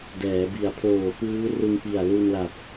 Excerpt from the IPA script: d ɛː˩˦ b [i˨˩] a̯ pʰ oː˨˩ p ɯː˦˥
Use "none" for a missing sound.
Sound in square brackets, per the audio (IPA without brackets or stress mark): i˨˩